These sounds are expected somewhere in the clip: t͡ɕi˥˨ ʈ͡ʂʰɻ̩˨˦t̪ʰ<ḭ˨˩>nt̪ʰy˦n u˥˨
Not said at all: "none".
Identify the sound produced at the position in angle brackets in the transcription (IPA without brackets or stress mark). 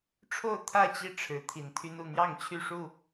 i˨˦